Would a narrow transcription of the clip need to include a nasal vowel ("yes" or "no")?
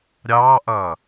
no